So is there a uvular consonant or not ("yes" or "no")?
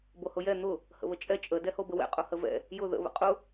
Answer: yes